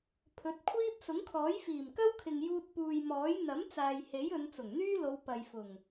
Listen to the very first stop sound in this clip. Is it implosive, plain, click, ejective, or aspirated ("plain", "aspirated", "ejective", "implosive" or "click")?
aspirated